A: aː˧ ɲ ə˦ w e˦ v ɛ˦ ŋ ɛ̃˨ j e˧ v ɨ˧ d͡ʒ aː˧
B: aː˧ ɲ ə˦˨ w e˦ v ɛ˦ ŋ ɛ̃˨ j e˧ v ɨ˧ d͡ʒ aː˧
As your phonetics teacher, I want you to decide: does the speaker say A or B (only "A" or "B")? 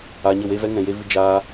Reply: B